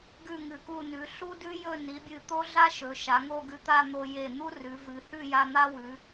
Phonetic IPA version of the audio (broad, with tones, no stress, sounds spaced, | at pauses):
ɡ ʉ˥˧ ŋ ɨ˧˩ k u˥˧ n ʉ˩˧ ɬ u˥ d ʉ˥ j ɵ˥˧ n i˩˧ bʲ ɨ˧˩ t̪ o˥ ɮ a˥ ʃ ɵ˩˧ ʃ a˩˧ ŋ o˥˧ ɡ ʉ˧ t̪ a˥˧ n̪ o˧ j e˧˩ n̪ u˥ r ʉ˩˧ v ɨ˩˧ h ʉ˥˧ j a˧ n̪ a˥ w ʉ˩˧